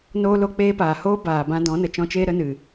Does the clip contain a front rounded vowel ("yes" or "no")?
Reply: no